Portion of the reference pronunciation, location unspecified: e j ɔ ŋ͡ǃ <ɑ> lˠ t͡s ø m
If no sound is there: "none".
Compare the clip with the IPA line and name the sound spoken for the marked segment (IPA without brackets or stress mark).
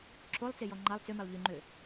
ɑ